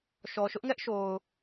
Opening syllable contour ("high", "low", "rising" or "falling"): low